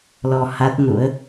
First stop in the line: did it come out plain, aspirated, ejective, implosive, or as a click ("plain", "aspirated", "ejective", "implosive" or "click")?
plain